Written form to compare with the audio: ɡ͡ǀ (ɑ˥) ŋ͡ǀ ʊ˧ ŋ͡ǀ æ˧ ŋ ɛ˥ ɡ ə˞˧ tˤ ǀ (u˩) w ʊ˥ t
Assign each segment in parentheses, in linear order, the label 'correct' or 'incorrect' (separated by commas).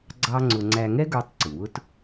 correct, correct